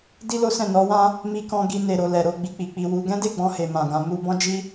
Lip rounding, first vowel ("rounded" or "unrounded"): unrounded